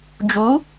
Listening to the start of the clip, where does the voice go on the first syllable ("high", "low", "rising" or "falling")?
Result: rising